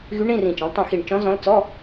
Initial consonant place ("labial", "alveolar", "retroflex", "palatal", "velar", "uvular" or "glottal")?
velar